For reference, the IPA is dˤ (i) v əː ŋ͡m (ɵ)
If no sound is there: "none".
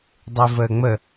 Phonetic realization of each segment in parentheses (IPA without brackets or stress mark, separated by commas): e, ə